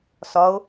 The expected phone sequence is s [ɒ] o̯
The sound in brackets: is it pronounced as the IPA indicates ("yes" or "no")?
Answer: yes